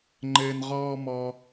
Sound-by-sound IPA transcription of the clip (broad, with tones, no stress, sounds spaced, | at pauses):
ŋ͡ǃ ɘː˩ n ʁ ɔː˨ m ɔ˩